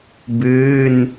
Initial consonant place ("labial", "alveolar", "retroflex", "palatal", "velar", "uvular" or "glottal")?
labial